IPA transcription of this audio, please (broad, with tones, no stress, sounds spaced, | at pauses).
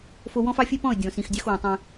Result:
f o˦ w ɔ̃˦ f ɑ˦ fʲ e˦ p ɔ̃˦˨ ə̯ dʲ ɔ̃˨ s ĩ˨ x dʲ ɑ˦ x w ɔ̃˨ tˤ ẽ˦